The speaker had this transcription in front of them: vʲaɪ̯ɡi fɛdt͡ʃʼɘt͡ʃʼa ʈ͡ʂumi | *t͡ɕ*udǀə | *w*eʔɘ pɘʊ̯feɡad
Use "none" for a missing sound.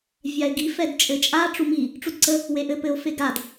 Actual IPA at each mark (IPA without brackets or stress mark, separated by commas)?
ʈ͡ʂ, w